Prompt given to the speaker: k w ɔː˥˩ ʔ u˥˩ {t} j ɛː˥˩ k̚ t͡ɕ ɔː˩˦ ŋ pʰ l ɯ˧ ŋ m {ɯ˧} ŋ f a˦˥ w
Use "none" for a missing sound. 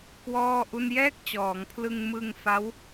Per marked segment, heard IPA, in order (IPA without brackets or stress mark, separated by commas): n, ɯ˧